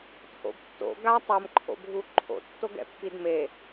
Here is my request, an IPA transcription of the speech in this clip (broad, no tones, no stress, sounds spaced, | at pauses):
t͡sʼ o̰ b tː o̰ ɡ a tˤ ʌ m ǃʰ o̰ bʱ u ǃʰ o̰ tː o ɡ ɛ̰ pː i d m e